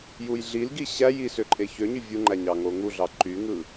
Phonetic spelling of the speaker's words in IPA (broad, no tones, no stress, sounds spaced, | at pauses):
j u j ɮ i l ɡ i ɕ æ j i s ø ǃʼ e ç ø ɲ y vʲ u ŋ͡ǃ æ ɲ ɑ ŋ o ŋ u ɮ ɑ ǃ y ŋ ɯ